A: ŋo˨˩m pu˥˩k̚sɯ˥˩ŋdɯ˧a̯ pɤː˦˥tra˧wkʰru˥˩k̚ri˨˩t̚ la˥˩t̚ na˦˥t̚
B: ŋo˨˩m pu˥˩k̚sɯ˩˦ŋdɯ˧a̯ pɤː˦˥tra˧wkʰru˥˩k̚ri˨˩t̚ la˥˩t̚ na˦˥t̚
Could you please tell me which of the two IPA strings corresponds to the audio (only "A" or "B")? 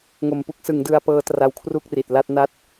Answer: B